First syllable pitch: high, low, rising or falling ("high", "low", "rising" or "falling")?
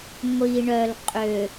low